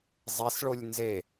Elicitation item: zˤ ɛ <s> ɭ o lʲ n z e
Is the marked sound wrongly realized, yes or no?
no